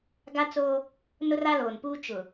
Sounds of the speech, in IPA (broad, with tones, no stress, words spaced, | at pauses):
ɡa˦t͡soː˦ | nʊ˦ra˦loː˨npuː˦ t͡ʃʊ˨